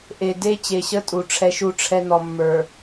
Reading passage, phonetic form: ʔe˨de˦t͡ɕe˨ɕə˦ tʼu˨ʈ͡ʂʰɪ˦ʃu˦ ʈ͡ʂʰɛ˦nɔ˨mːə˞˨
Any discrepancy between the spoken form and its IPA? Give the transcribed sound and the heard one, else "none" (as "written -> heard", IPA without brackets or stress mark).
ɪ˦ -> ɛ˦